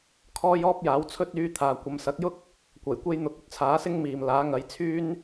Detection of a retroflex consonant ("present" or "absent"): absent